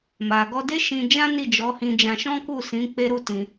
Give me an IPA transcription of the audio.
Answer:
ma˨ɡɔ˧ de˦ʃĩ˧d͡ʒã˦ ni˦˨d͡ʒɔ˨˦hĩ˧d͡ʒã˧ ʃɔ̃˦ku˦˨sĩ˨˦ k͡pe˦ɾu˦tĩ˧

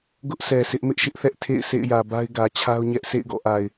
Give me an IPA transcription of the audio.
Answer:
ɡʊ˦ʔsɛ˨sʰɪ˦ʔ mɪ˦ʔʃɪ˦ʔθɛ˦ʔ tʰḛ˦˨ɪ̯ sʰḛ˦˨ɪ̯jä˨ ba˦ɪ̯ɡä˨t͡ɕʰa˦ʊ̯ɲɛ˦ʔ sʰḛ˦˨ɪ̯ɡɔ̰˦˨ʔa˨ɪ̯

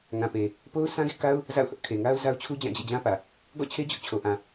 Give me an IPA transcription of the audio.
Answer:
ŋã˨pe˨ | po˦ʊ̯sã˦ɡḛ˦˨ka˦ʊ̯ | za̰˦˨ʊ̯hʊ˦ʔ kʰe˨ŋa˦ʊ̯za˦ʊ̯t͡ɕʰu˦ d͡ʑã˦˨d͡ʑḛ˦˨d͡ʑã˦pä˨ | ɡɔ̰˦˨t͡ɕʰe˦ d͡ʑʊ˦ʔ t͡ɕʰo˨ʔã˨

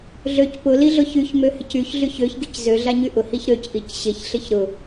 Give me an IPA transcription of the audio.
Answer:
ɮøc pʊ liɮʊçyç møhɪcyç ɮyçøç ɡiczø ɮaɲyʔʊ hiçɾøc ʔicɕɪç ɬɪçɾʊ

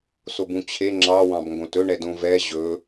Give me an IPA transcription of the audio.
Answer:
sobũt͡ɕʰe ŋ͡ǁɑ wɑ̃bŋɡõtɵ ɳɛdõvɛ ʑɵ

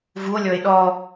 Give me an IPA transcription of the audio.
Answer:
vuo̯lʲɔe̯ ɗɔ

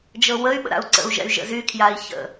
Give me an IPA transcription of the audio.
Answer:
d͡ʒɤwəy̯ɓə̰ ɾa̰u̯ǀə̰u̯ʒɛ̰y̯ ʒə̰zykʰjai̯ çə̰

